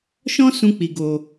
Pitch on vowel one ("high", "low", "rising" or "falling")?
high